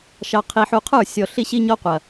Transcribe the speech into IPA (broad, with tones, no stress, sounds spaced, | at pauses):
ʃ ɑ˨ qʰ i˨ ħ u˨ qʰ ə˞˦˨ sʲ ɔ˨ ɬ i˦ ɕ i˦ ɲ ɔ˦ qʷ ɐ˨